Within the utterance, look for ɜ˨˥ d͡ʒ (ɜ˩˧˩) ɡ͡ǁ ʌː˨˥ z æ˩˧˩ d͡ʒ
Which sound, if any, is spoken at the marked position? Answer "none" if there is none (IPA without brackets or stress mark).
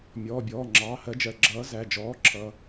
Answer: ɜ˩˧˩